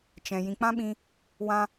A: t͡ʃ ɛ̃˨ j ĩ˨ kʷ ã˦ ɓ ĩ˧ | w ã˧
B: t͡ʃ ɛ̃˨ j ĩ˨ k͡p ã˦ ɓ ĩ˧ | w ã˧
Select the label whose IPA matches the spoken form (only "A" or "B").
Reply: B